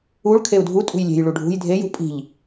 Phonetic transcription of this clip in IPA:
u ɭ kʰ e u̯ dʱ u tʼ ṳ j lʲ e̤ j ɭ u ɖʱ ṳ j dʱ e j ṳ pʼ i̤ ʎ

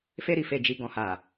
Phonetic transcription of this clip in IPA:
f e˧ ɾ i˨ f e˨ d͡ʒ i˨ ɡ ɔ̃˨ h a˨

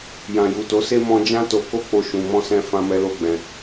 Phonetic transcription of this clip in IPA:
j ã˨ j u˨ t o˨˦ s e˦ m ɔ̃˧ d͡ʒ ã˦ t o˧ k o˦ k͡p o˧ ʃ ũ˨ m ɔ̃˧ s ɛ̃˧ f ã˧ m ɛ˧ l o˧ ɡ͡b ɛ̃˨

